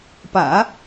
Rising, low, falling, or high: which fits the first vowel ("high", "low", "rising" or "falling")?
low